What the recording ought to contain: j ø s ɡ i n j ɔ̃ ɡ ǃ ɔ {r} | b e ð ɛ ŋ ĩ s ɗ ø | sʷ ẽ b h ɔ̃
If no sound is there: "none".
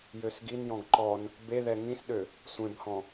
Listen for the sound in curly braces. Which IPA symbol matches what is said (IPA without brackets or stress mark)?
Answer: n